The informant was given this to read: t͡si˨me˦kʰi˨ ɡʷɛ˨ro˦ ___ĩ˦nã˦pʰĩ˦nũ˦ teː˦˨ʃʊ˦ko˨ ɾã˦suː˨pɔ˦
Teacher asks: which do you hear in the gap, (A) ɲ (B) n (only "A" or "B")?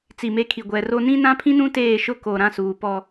B